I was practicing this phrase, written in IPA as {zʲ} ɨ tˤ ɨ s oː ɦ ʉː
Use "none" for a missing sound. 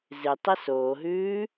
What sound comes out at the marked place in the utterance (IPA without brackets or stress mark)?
z